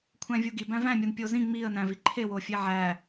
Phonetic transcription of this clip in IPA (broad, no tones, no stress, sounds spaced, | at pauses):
kʷʰ æ̃ vʲ u ɡ i b æ̃ v æ̃ mʲ o n pʲ o z ĩ ŋ͡m i ə̯ n æ̃ v i ǃʰ e w o fʲ e ʕ æ